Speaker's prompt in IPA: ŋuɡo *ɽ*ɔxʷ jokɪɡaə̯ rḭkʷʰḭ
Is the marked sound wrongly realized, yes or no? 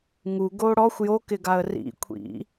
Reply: no